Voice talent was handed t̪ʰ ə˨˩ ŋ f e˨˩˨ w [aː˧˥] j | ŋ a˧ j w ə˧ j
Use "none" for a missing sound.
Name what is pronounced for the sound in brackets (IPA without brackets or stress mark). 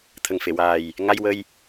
aː˨˩